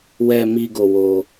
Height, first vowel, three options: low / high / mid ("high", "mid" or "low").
mid